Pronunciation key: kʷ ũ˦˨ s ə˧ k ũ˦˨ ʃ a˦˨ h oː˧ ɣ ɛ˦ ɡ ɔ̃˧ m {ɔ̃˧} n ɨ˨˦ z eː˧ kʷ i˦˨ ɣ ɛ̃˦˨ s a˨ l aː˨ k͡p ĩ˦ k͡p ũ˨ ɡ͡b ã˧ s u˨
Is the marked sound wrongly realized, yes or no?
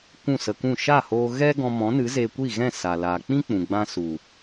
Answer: yes